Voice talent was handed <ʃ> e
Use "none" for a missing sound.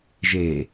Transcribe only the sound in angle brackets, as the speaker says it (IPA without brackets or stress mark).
ʒ